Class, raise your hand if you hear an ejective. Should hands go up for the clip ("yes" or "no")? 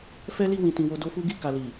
no